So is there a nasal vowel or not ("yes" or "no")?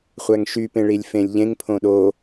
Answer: yes